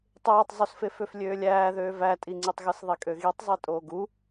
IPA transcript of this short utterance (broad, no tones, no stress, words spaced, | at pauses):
tˤeːtˤzˤusfeføf lʲøːlʲæːðøː vætʼiŋ͡ǀitˤɣɯs ðˤikʼøɣitˤzˤe tʼoːɡu